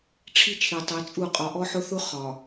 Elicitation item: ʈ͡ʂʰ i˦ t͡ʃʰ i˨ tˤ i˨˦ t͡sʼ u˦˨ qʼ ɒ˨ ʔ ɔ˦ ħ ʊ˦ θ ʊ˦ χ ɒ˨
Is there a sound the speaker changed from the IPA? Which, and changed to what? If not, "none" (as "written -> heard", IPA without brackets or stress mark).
none